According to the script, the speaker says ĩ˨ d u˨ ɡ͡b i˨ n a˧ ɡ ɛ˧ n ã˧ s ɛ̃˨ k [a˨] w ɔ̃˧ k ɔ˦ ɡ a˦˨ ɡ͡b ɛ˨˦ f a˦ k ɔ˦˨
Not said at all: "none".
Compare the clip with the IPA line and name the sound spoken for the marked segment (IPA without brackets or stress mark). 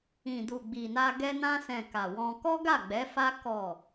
a˨